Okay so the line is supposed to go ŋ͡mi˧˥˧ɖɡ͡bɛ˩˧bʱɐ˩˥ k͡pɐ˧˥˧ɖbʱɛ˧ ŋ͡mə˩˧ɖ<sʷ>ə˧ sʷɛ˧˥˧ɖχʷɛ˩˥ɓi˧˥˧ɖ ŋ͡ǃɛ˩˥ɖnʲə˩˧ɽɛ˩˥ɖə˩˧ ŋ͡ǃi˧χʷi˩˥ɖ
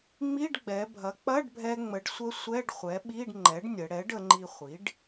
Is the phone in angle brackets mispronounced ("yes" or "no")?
no